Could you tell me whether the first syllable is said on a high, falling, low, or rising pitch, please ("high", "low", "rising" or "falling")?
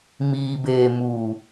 low